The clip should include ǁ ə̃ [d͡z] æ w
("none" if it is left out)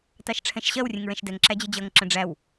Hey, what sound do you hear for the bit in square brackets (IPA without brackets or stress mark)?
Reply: ɖ͡ʐ